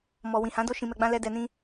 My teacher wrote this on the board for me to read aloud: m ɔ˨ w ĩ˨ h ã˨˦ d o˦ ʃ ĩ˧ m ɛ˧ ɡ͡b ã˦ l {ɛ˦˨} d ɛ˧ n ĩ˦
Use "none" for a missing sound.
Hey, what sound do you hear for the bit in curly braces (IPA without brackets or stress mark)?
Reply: ɛ˦